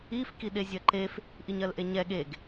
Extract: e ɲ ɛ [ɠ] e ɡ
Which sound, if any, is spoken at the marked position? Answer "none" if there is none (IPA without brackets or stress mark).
ɠ